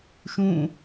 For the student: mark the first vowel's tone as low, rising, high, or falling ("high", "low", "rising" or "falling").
falling